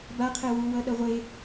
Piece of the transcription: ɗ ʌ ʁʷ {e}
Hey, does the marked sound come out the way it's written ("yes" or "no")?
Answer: yes